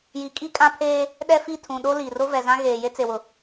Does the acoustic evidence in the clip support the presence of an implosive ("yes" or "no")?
yes